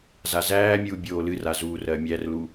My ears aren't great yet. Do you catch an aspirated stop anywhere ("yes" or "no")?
no